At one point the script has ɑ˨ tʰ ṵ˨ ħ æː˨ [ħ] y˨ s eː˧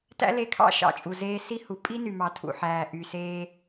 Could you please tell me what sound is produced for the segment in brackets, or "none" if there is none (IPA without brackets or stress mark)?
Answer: ʔ